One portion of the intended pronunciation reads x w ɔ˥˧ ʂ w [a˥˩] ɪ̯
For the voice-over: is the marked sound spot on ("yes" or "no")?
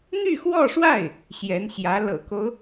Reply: yes